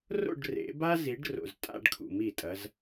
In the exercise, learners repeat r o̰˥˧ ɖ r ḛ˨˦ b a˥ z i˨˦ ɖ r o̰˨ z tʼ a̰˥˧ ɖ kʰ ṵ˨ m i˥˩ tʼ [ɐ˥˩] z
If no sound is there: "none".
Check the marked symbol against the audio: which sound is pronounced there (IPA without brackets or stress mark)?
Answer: ɐ˨˦